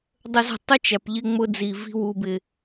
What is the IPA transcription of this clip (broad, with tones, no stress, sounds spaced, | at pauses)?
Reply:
dˤ ə˧ z ə̤˦˨ tˤ ʊ˦ t͡ʃ æ˨ p ʎ ɪ˧ ŋ͡m ʊ˧ d͡z i˨ v i̤˦ w u˧ b ɪ˧